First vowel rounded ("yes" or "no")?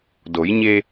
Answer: yes